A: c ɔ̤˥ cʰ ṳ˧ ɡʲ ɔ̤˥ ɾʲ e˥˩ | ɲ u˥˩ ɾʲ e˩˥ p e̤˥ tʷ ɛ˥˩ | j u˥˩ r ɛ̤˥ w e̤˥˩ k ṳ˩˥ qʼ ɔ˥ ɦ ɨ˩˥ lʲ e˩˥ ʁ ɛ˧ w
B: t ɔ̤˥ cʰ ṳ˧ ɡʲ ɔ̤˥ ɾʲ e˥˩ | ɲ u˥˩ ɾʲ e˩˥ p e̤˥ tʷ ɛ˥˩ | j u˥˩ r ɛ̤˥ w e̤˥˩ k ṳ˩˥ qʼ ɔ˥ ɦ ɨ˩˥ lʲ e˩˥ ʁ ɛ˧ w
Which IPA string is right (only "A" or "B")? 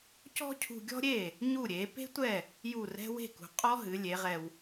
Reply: A